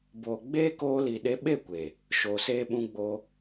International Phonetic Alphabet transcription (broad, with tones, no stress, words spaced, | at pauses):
boː˨ ɡ͡beː˦koː˧li˨ɗe˧ ɓe˦˨kʷeː˨ | ʃoː˨seː˧ɓũ˧ ɡ͡boː˧